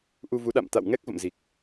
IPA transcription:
ʔ u˧ v u˨˦ ɗ a̰˧˨ m t̪ a̰˧˨ w ŋ ɛ˦˥ k̚ v ə̰˧˨ m z i˨˩ k̚

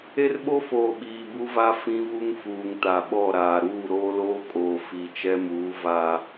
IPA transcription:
e˦ r ɓ o˦ f oː˨ ɓ iː˨ b u˦ v a˦ f ĩ˦ v u˦ ŋ f uː˨ ŋ t a˨ ɓ ɔ˦˨ ɾ aː˨ ɾ uː˦˨ ɾ oː˦ l oː˦ kʼ oː˨ f i˨ t͡ʃ ɛ˦ m uː˨˦ v a˦

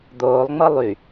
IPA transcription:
d̪ oː lˠ ŋ͡m ɤ lˠ y

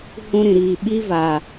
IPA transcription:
h ũ˧ ɾ ĩ˨ ɾ iː˨ ɓ i˧ v a˨

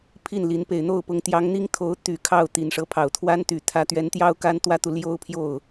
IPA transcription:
pʰ i˥˩ n l i˧˥ n p e˨˩ ɪ̯ n̪ o˥˩ ʊ̯ p ʊ˧˥ ŋ t̪ j ɑ˧˥ ŋ n̪ i˥ ŋ t̪ʰ o˧˥ ʊ̯ t̪ y˨˩ kʰ ɑ˥˩ ʊ̯ t̪ i˨˩ n ʂ ɤ˧˥ pʰ ɑ˨˩ ʊ̯ t̪ʰ w a˥ n t̪ y˨˩ t̪ʰ ä˧˥ t̪ ɥ ɛ˧˥ n t̪ j ɑ˥ ʊ̯ k a˥ n t̪ w ä˥ t̪ u˨ l j o˥ ʊ̯ pʰ j o˥˩ ʊ̯

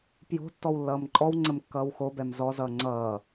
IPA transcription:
p j o̤ tː ɔ w lː ʌː m ǃʼ ɔ w ŋ͡ǀ ə m kː ʌː w x o b ɛ m z ɔ z ʌː ŋ͡ǀ ʌː

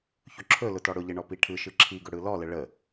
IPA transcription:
ç ɵ ǁʰ ɵ l ʊ t ɔ ɽ ʊ ʎ ɘ ɳ ɔ p i ʈʰ ɯ ʃ ɯ ǁʰ i ɡ ʊ ɽ ɯ l ɔ l ə ɭ ə

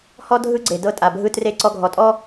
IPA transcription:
h ɔ˦ dʱ ɯ˦ ɡ͡ǀ e˨ d ɤ˧ tʼ a˨ bʱ ɯ˧ t r e˦˨ ǀ ɔ˧ ɡʱ ɔ˨ tʼ ɔ˦

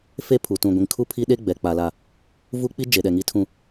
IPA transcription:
f e˦ pʰ u˨ t ũ˨ ɡʷ ĩ˨ ŋ kʰ u˦ pʰ i˦ ɗ e˦ ɡ͡b ɛ˨ k͡p a˨ l a˨ | v u˦ k͡p i˦ d͡ʒ e˨ ɗ ɛ˨ ŋ i˨ tʰ ũ˨

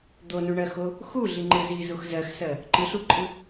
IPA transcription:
d̪ o n u ɳ ɜ x o | x u ɮ i ŋ͡ǃ ɯ z i z u x z ɜ x s ɜ | ǃ ɯ ɬ u ǃʼ ɯ

